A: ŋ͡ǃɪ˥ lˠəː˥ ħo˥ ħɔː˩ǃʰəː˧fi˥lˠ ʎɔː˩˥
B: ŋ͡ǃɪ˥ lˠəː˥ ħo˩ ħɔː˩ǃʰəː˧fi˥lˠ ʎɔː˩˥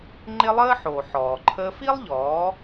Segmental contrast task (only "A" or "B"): B